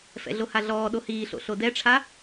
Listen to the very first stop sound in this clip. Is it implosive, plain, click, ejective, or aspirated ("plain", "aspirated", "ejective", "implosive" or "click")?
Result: implosive